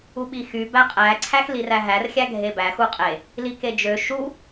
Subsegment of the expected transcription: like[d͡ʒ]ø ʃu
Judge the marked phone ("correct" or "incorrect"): correct